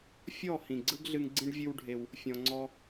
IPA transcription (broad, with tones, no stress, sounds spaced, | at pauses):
fʲ ɔ˦˨ h ĩ˨ ɡ͡ǀ ɯ˦ ɡ ɮ ɨ˧ ŋ ɡ͡ǀ ĩ˦ ɖ vʲ ɨ˦ w ɖʱ e˧ w | fʲ ɔ̃˧ ŋ͡ǀ ɔ˦